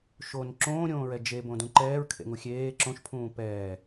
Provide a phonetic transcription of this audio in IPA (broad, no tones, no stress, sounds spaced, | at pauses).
ʃ o n ǁ õː ɾʲ õː ɹ ɛ d͡ʒ e b õ d ũ ǃ ɛː ɹ kʰ ḛ ŋ u xʲ eː ǁ õ ʃ pʰ ũː p ɛː